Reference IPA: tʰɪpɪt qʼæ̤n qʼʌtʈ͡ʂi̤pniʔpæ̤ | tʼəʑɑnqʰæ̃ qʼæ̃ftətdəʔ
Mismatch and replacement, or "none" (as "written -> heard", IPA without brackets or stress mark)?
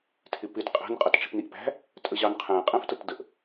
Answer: none